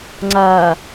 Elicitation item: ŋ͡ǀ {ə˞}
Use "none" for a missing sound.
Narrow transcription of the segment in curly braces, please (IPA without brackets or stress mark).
ɐ